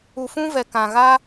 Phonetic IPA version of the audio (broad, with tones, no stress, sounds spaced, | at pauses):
u˧ f ũ˦ v ɛ˧ k ã˧ ɣ a˦